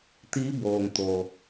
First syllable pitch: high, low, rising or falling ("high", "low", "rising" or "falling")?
rising